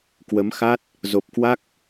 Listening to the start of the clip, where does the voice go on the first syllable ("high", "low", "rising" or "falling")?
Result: rising